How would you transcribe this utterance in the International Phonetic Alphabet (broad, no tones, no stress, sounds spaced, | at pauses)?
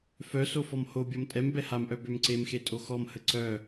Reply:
f œ s o f ɔ m h o bʲ ɔ m tʼ ɛ m b ɛ h a m ʔ œ b ø m ǀ e m x e tʼ o x ɔ m h ə ǀ œ